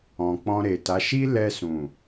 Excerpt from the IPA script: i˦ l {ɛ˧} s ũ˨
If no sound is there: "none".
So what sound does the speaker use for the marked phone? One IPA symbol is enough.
ɛ˧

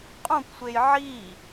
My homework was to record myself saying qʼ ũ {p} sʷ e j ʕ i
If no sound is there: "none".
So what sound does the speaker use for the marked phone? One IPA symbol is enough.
p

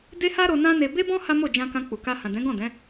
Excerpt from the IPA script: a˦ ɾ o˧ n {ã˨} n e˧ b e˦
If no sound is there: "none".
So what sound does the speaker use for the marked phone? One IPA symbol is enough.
ã˦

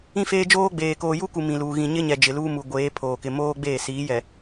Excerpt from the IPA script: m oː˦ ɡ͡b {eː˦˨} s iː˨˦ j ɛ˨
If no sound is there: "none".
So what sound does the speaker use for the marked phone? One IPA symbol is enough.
eː˦˨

